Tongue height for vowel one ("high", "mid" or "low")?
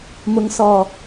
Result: high